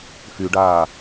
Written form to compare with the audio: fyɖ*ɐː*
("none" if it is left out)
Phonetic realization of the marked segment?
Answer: aː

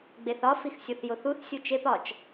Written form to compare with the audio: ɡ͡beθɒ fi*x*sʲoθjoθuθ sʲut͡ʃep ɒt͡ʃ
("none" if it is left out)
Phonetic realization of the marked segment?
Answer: x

